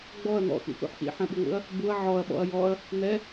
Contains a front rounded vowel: no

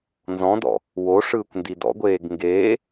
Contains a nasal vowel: yes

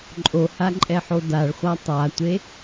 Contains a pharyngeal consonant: yes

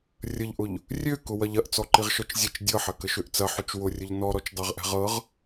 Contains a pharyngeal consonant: yes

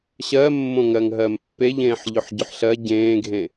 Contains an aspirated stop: no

